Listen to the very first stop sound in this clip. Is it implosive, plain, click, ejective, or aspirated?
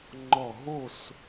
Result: click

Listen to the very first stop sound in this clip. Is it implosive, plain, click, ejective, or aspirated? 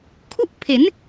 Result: aspirated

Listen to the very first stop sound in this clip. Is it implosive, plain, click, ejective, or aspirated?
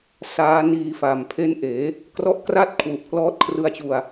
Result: aspirated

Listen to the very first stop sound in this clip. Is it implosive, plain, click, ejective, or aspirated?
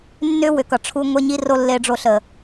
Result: plain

